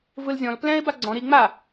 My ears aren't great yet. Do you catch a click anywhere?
yes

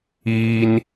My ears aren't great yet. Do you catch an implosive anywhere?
no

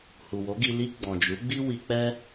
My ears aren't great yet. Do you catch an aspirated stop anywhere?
no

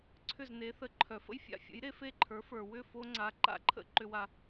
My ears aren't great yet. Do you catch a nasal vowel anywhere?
no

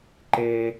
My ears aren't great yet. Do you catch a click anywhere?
yes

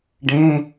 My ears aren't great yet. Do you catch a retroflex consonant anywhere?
yes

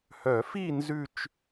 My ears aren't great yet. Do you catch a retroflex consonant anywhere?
no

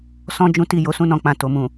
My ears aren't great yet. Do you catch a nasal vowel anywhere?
yes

